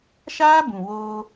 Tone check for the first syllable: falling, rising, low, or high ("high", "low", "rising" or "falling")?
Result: high